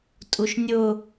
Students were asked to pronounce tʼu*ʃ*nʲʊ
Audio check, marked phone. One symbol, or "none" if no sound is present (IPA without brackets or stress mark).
ʃ